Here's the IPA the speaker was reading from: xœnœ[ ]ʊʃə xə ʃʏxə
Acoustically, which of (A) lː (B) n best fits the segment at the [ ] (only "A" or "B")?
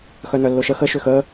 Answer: A